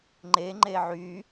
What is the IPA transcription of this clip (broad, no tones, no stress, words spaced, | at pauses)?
ŋ͡ǃe ŋ͡ǃeʕy